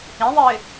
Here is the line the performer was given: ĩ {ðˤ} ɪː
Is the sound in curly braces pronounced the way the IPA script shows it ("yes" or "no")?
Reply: yes